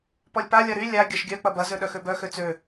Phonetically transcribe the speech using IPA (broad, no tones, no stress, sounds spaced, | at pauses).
p ɔ lʲ p a lʲ ɐ ɾ y lʲ a ɡʲ ɐ ʃ ɡʲ œ k͡p ɐ b ɐ z ø ɗ œ x ø b œ x ø t͡s ø